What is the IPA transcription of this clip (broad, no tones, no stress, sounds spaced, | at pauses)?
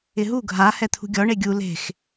ɪ ɦ u ɡʱ a h ɛ t̪ʰ ṳ ɡʲ ɔ ɳ e ɡʲ u l e̤ x